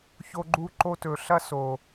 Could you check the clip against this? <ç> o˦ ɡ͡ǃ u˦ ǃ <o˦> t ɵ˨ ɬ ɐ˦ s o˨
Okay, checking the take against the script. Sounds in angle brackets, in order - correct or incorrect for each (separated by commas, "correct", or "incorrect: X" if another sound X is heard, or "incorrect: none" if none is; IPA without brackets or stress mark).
correct, correct